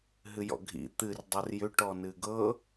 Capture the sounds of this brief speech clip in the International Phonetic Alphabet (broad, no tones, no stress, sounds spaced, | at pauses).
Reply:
ɦ ɨ j ɔ̰ ɡʱ ḭ t̪ ɨ r dˤ o r j ʏ ʈ ɔ n ɨ ɡ ɤ